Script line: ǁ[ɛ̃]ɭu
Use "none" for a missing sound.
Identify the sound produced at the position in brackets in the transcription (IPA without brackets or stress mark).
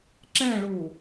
ɛ̃